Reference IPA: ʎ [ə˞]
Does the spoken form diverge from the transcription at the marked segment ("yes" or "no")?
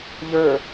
no